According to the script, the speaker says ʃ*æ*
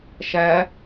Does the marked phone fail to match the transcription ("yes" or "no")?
no